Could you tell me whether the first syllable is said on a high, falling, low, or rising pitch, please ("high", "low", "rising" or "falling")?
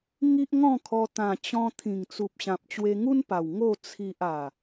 high